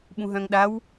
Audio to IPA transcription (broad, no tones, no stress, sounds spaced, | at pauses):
ɓ ũ ɦ œ̃ ŋ ɗ a w